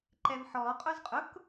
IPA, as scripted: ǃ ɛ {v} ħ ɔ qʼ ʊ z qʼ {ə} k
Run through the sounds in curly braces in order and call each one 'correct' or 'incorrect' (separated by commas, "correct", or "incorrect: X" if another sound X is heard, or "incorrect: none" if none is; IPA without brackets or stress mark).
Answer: correct, incorrect: ʊ